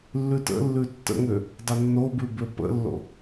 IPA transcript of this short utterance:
lː ʉ t ə̰ lː ʉ tː ə̰ ŋ ø | dˤ ə nː o b ʉ b ø p ə̰ lː o̰

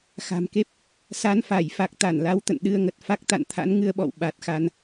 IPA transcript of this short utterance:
x a̤˨˩ m k e˦˥ p̚ | s a˨˦ n f a˧˩ j f a˨˩ k̚ t̪ a˧˩ n l a˨˦ w t̪ ə̰˧˨ n ɗ ɨ˧ ə̯ ŋ ə˨˩ t̚ f a˦˥ k̚ t̪ a̰˧˨ n t̪ʰ a̰˧˥ n ŋ ɨ˧ ə̯ ɓ ɔ̰˧˨ w ɓ a˨˩ t̚ x a˧ n

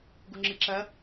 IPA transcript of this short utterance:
ɡ u ŋ͡ǁ ɨ ǁ ɐ

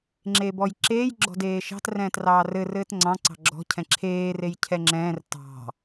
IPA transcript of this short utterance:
ŋ͡ǁ e b ɔ j ǁ eː j ɡ͡ǁ ɔ̤ d eː ʃ ɑ̤ t r ɛ̃ː t r ɑː r ɘ r ɘː t ŋ͡ǀ ɑ̃ ǀ ɑ̤ ɡ͡ǁ ɔ̤ cʰ ɛ̃ ǁʰ eː r e j cʰ ɛ ŋ͡ǁ ɛ̃ː r t ɑ̤

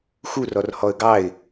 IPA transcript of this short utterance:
x u r ɔ r h ɔ ə̯ ɡ ɑ ɪ̯

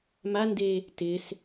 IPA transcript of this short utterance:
m a n d e | t ɪ s

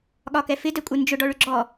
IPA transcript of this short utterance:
ɠ ɒ k ɛ f ɪ d ɛ kʷʼ ɪ n d͡ʒ ʊ ɖ ɔ ɭ ʏ ɡ͡ǁ ɔ

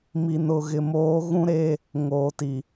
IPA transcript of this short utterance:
m i˨ n ʊ˨ ɣ ɪ˨ m oː˨˦ ɣ ũ˦ ɾ e˦ | ŋ oː˨ t i˨

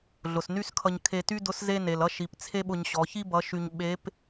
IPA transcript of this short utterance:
ɮ ʊ˩ s n y˥ s kʰ ʌ˧ ɲ kʰ e˧ t y˥ d ʊ˧˥ s z e˥ n e˩ l ʌ˥ ʃ i˩˧ p t͡sʰ e˥ ɓ ʊ˧ ɲ ɕ ɔ˩˧ ç i˥ b ʌ˩˧ ʃ y˧ ɲ ɓ e˧˥ p

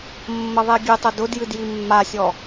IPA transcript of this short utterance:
mː ə ðˤ e ɡʲ ɨ tˤ ʊ d ʊ d j ɨ d j i mː a sʲ ɔ

